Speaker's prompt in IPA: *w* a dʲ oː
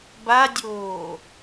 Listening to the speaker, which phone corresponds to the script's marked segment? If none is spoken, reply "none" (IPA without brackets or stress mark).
b